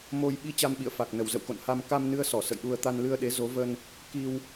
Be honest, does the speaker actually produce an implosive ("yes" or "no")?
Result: yes